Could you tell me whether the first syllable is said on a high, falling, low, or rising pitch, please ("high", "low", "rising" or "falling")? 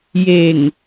low